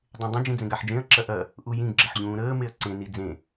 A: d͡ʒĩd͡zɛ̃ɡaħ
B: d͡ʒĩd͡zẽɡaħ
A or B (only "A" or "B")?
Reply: B